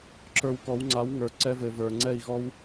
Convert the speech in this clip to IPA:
ǁ ə˞˧ w k ɔ˨˦ w ŋ͡ǀ a˨˦ w ŋ ə˞˨ ǀ ɛ˧ v ɘ˨ v ə˞˨ ŋ͡ǀ ɛ˦˨ i̯ ɣ ɔ˦ w

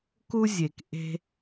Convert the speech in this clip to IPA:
k u˥ zʲ e˩ k ʔ e̤˥

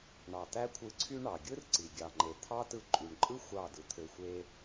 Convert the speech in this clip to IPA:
ɳ ɑ˨ t̪ æ˦ kʷʰ ɯ˧ ǀʰ y˦ ɳ ɑ˨ ɡʲ ɯ˦ r ǀ i˨ ɡʲ ɑ˨ ŋ͡ǃ e˨ t̪ʰ ɑ˦ t ɯ˧ ǃʼ y˨ ɳ ǃʼ ɯ˦ xʷ ɑ˦˨ d ɯ˨ t̪ʰ ø˧ xʷ e˦

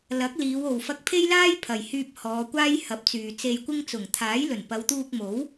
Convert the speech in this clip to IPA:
l ɐ˨˥ k̚ l iː˨˧ w o˨ w f ɐ˧ k̚ pʰ e˥ j l aː˥ j pʰ ɐ˨ j h yː˧ p̚ h ɔː˨˧ kʷ aː˥ j h ɐ˨˥ p̚ t͡s yː˨ t͡s e˧ j kʷ ɪ˥ ŋ t͡s ʊ˨˩ ŋ t̪ʰ aː˨˥ j l ɵ˨˩ n p ɐ˨˧ w t̪ uː˧ k̚ m o˨˥ w

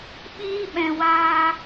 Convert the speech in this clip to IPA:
ɓ iː˧ ɓ ɛ̃˨ w aː˧

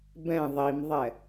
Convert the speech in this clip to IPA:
b ɛ̃ ðˤ i m ðˤ ɛ

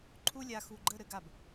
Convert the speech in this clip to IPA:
ǃʰ u˥ lʲ a˧ x u˧ ɡ͡ǃ ə˥˧ ɾ ɘ˥˧ ɡ a˧˩ b

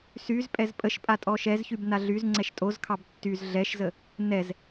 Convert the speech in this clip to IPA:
s y z pʼ ɛ z pʼ ə ʃ pʼ a tʼ ɔ ʃ ɛ z ç y b n a ɮ y z ŋ͡ǀ ɛ ʃ tʼ o z kʰ ɑ b tː y z ɮ ɛ ʃ z ə | n ɛ z

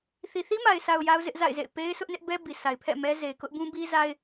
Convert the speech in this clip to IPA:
θ i˨ θ i˦ m a˨ ɪ̯ s a˨ ʊ̯ j a˦ ʊ̯ z ɪ˦ ʔ z a̰˦˨ ɪ̯ z ḛ˦˨ ɪ̯ p e˦ ɪ̯ sʰ ʊ˦ ʔ n ɪ˦ ʔ b ɛ˦ b i˨ sʰ a˨ ɪ̯ pʰ ɛ̰˦˨ m ɛ˦ z e˨ ɪ̯ k ʊ˦ ʔ b ũ˦ b i˦ z a˦ ɪ̯

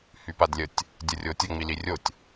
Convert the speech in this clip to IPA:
h y p a d lʲ ə tʲ | dʲ ə rʲ o tʲ ə ŋ͡m i l i rʲ o tʲ

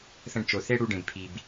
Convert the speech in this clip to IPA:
θ ə̃˧ ɖ t͡ʃ o˨ θ e˦ ɽ u˧ ɖ ẽ˨ b pʰ i˨ b

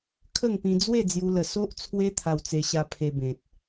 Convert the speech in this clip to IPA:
kʰ ə˥˧ ŋ p ĩ˧ d͡z w e˥˧ d͡z j u˦ l ə˧ s o˦ ʔ t͡sʰ w e˦ t̪ʰ a˧ w t͡s e˧ ɕ a˧ pʰ e˧ b ẽ˨ t̚

